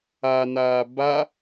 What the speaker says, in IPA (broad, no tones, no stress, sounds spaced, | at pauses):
a n aː b a